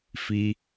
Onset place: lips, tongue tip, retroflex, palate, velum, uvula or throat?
lips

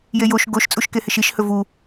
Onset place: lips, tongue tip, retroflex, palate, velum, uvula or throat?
palate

